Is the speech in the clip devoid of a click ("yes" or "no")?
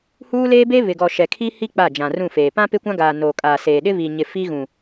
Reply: yes